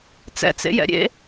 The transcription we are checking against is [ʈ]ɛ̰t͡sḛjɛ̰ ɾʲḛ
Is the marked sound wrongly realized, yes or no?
yes